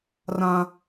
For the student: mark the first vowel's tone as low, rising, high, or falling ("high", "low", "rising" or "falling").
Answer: high